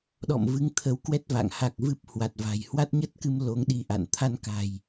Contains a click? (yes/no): no